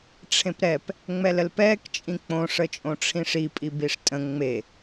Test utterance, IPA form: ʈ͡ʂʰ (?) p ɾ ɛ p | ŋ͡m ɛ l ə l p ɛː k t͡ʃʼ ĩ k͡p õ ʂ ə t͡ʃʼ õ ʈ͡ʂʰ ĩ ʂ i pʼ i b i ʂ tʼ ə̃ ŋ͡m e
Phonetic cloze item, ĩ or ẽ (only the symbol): ẽ